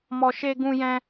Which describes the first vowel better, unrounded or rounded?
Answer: rounded